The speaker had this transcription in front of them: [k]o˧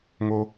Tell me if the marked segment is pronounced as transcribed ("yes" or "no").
no